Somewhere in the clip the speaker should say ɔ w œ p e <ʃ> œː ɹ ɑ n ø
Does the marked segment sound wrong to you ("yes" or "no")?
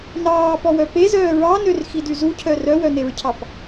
yes